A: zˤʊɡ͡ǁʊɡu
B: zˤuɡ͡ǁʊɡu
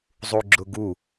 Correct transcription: B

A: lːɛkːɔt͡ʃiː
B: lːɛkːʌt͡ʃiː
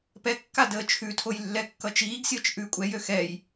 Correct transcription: B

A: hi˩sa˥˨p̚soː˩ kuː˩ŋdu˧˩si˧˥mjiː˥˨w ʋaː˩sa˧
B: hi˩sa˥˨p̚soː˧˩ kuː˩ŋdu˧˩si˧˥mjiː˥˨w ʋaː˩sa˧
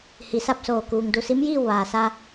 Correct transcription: B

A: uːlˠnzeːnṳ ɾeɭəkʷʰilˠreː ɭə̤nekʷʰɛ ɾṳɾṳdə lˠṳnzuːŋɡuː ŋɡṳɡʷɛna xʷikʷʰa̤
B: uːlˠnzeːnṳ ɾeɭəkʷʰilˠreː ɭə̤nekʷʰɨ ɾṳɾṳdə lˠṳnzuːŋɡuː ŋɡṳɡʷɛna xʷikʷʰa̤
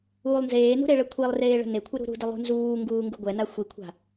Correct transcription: B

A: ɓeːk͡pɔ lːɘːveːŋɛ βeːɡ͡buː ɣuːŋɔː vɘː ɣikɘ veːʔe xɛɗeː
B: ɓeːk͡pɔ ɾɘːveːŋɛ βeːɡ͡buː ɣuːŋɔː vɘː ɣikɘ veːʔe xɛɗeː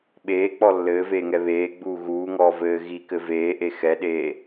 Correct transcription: A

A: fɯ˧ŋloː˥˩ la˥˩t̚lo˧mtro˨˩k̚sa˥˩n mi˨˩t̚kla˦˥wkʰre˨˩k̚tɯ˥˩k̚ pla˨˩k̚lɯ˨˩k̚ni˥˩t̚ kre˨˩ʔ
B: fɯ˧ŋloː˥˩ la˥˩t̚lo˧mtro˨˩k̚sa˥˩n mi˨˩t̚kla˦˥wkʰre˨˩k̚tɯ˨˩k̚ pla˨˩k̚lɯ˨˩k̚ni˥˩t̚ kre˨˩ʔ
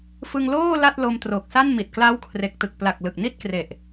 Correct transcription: B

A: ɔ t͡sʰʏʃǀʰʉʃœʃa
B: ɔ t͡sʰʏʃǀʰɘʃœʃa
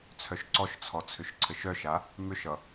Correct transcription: B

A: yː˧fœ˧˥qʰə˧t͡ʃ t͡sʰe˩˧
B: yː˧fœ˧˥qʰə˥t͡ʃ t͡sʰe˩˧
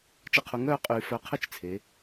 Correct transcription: B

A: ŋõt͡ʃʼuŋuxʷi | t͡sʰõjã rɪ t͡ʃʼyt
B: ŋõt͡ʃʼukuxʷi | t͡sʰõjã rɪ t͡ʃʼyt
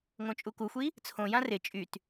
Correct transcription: B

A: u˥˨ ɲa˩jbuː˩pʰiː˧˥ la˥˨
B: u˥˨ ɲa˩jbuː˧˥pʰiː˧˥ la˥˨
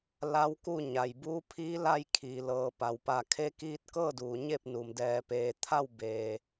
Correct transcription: B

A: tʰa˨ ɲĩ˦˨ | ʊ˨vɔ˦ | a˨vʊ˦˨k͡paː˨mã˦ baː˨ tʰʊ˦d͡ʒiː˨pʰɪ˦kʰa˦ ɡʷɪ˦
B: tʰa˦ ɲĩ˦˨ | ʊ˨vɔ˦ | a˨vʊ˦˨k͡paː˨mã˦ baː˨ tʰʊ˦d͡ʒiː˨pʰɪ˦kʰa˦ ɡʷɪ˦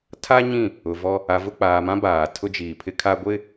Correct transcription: B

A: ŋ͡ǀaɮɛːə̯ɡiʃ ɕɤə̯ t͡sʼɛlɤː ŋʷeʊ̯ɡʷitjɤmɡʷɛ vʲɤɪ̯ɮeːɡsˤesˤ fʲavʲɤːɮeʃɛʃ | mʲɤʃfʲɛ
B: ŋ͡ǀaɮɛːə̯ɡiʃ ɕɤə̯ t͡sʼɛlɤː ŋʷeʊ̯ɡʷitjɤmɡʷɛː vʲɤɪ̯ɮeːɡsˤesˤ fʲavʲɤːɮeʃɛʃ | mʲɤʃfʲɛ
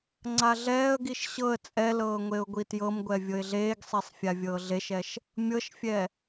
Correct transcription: A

